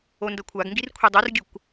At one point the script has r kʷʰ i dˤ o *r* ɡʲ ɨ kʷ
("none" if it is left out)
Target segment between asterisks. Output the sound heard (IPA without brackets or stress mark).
r